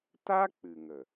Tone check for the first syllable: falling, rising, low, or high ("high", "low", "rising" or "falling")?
high